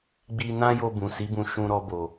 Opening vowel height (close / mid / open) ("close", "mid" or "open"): close